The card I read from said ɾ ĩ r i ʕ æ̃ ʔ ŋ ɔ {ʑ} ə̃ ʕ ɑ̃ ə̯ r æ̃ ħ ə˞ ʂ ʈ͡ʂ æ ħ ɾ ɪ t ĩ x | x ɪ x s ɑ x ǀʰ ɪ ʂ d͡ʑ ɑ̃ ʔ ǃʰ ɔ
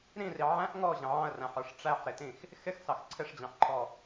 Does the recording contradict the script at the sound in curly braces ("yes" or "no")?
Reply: no